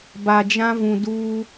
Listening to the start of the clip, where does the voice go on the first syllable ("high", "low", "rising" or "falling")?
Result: low